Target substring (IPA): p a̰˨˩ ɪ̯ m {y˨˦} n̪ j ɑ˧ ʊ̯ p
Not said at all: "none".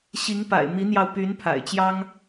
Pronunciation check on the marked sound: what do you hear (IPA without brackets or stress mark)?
i˨˦